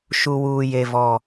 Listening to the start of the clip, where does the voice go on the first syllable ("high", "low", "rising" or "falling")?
low